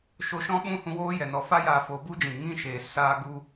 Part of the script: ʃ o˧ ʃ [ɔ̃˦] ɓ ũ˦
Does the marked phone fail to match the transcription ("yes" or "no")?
no